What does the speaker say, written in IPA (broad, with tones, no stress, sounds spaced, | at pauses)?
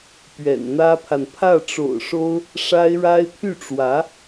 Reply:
p ɥ ɛ̰˨˩ n n̪ ä˥ pʰ a˨ n pʰ ä˥˩ ʈ͡ʂ o̰˨˩ ʊ̯ ʂ o˥ ʊ̯ | ʂ a˥ ɪ̯ ɻ a˥ ɪ̯ pʰ y˥˩ ʈ͡ʂ w ä˧˥